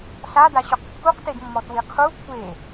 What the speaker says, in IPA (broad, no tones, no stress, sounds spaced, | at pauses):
ɬ a d a ɕ o q kː u q t e d mː ɔ t w i qʰ u kʷʰ e